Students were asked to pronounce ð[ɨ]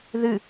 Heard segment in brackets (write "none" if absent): ɨ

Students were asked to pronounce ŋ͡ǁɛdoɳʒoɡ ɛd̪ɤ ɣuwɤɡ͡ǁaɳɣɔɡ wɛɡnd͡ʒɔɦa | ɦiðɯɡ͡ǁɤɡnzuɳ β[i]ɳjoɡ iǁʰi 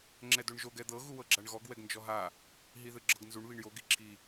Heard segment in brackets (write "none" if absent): i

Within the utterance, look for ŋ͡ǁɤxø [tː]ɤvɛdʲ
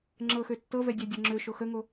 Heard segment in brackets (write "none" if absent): tː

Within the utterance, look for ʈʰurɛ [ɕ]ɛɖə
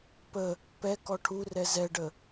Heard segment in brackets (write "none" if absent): z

